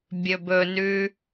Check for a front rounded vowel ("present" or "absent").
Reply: absent